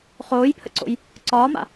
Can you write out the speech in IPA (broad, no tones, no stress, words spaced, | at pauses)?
χoːjpʰə̰ǀo̰j | ǀɒːma̰